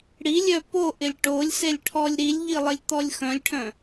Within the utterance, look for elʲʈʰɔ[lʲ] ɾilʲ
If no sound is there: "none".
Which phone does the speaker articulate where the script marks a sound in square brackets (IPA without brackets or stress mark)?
lʲ